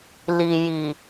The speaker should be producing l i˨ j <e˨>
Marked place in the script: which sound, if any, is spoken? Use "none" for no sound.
i˨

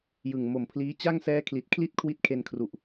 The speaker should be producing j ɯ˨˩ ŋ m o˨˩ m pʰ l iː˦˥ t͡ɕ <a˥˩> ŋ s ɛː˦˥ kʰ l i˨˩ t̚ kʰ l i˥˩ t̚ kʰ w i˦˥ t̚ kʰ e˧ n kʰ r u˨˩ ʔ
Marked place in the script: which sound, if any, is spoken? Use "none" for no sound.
a˥˩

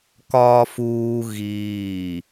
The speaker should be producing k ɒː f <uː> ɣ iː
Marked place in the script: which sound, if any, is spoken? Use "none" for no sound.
uː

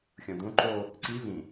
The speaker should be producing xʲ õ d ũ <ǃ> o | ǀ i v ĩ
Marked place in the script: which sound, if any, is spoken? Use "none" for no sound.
ǃ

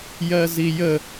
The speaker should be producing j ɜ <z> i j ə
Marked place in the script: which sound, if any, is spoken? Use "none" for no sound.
z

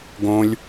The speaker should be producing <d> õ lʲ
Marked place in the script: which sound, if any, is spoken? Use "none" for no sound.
ɡ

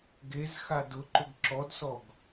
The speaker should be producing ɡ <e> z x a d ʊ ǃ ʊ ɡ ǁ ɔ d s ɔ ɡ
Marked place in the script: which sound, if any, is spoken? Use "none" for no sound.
e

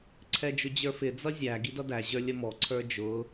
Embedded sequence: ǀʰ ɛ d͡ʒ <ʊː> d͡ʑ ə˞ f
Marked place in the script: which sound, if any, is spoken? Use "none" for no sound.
ʊ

